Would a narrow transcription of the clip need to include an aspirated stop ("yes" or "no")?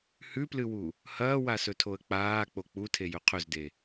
yes